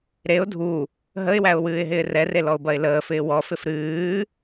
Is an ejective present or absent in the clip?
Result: absent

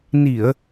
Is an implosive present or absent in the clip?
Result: absent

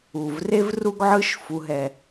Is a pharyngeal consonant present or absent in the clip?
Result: present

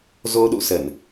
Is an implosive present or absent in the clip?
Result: present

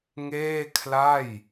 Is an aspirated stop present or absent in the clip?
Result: present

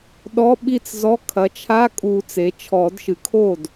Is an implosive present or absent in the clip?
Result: present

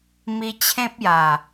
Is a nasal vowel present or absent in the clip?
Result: present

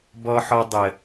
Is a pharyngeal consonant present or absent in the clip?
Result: present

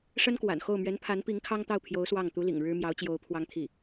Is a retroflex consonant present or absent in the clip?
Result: present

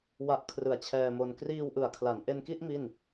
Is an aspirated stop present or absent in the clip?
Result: present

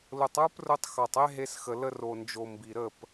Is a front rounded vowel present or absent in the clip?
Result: absent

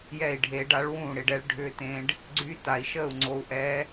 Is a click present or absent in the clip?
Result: present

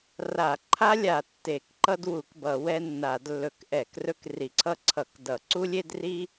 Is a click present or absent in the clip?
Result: present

